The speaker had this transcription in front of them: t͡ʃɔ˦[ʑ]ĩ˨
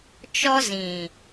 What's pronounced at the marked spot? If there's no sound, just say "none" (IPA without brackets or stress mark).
z